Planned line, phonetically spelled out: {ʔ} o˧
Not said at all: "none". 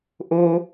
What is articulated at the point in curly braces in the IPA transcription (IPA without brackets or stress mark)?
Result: ʔ